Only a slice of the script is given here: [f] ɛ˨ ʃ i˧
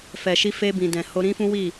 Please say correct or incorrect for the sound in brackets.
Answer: correct